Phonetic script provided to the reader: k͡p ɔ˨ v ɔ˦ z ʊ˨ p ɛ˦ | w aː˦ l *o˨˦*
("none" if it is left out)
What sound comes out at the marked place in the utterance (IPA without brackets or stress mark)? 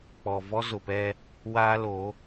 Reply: o˨˦